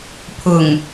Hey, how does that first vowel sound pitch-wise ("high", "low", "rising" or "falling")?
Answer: low